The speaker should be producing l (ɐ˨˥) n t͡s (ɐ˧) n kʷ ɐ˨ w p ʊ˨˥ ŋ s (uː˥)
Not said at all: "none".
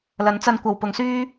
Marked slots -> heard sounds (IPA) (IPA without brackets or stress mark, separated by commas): ɐ˨˥, ɐ˧, yː˥